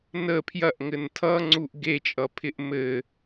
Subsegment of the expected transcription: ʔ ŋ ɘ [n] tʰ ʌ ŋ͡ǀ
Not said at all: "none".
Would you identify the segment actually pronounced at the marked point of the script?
n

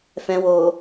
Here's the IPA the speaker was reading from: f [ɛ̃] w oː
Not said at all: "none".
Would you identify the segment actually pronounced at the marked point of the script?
ɛ̃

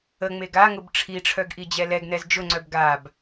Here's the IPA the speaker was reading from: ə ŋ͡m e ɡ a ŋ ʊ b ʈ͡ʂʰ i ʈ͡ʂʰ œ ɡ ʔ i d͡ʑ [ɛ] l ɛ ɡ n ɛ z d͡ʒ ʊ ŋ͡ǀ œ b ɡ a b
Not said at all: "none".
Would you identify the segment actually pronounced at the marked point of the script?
ɛ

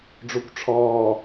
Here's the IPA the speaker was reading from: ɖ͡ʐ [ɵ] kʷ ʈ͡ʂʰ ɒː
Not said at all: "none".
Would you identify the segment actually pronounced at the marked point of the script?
o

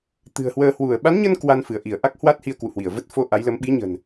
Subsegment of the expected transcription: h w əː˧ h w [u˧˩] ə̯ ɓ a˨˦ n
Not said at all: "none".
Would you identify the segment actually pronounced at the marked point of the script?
u˧˩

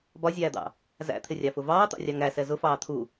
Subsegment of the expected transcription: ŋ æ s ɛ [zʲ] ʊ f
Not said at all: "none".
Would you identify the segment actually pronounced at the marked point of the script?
z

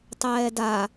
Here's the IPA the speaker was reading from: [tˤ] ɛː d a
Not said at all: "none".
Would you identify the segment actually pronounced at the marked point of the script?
tˤ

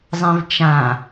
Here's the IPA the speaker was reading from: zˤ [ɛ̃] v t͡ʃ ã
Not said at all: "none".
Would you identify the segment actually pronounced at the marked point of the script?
ɛ̃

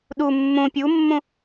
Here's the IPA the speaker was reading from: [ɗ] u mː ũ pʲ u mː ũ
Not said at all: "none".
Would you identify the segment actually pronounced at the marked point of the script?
ɗ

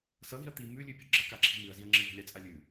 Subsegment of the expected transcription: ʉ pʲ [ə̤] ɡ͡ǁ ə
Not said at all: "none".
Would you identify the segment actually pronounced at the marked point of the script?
ə̤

